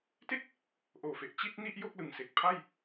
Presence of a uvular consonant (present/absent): absent